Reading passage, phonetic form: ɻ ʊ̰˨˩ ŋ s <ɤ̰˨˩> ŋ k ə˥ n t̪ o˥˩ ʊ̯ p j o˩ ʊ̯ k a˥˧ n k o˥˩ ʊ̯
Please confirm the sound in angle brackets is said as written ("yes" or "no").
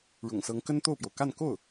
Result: no